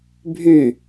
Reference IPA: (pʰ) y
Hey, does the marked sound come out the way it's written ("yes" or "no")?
no